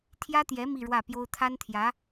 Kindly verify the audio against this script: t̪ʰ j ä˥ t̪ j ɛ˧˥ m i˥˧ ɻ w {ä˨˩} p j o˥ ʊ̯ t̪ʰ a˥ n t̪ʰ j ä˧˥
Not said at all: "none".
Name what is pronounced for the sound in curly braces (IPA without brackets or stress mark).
ä˥˩